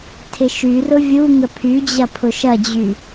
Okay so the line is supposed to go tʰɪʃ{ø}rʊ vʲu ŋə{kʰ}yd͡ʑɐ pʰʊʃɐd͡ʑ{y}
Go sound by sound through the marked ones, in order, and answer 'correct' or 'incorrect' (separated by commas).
incorrect, incorrect, correct